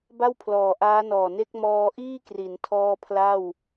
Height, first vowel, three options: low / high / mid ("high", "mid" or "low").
low